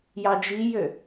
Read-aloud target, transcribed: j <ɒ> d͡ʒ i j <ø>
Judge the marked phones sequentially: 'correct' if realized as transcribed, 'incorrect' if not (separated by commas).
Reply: incorrect, correct